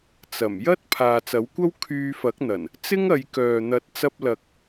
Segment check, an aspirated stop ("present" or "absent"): present